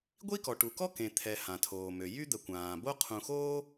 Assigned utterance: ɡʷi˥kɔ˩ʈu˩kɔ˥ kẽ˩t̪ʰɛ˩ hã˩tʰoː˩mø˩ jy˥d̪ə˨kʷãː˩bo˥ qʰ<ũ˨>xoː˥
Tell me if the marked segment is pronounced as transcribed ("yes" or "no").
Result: yes